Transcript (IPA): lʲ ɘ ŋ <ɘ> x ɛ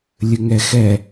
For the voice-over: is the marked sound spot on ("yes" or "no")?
no